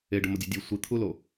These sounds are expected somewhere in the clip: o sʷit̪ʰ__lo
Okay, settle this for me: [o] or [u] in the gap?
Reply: u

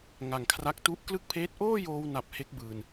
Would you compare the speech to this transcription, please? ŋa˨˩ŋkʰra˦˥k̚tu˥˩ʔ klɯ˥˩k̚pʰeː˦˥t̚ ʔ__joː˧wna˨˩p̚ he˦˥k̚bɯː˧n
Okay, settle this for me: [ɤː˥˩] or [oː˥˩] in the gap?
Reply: oː˥˩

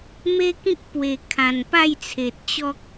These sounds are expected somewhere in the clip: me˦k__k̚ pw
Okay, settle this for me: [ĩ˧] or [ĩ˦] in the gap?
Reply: ĩ˦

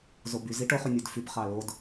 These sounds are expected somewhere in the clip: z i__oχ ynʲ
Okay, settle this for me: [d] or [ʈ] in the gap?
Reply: ʈ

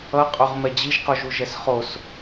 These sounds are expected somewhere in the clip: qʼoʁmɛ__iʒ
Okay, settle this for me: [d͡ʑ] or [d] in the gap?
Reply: d͡ʑ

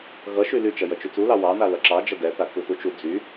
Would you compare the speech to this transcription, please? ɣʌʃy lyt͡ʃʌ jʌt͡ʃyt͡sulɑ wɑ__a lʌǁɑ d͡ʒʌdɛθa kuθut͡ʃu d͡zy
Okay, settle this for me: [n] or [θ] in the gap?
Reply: n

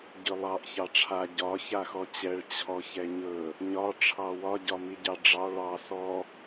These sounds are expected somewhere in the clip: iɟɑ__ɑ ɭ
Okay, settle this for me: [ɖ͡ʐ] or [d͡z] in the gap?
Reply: ɖ͡ʐ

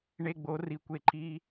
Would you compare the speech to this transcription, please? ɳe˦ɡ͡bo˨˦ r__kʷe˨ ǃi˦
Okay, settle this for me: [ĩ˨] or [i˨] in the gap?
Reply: i˨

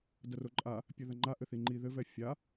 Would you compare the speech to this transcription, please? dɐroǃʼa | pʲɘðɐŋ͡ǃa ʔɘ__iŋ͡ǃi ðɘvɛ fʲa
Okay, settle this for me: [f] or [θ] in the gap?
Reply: θ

